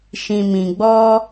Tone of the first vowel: low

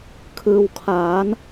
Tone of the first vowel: low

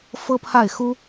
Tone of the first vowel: high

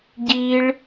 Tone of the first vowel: high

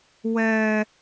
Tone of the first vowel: high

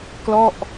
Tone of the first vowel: falling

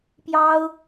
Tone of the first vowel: high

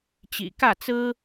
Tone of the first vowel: low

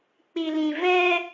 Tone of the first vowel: low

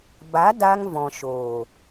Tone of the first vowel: rising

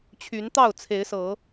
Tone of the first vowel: rising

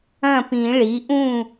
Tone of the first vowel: falling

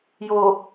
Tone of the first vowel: low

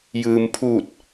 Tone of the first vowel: low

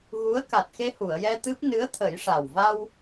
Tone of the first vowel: rising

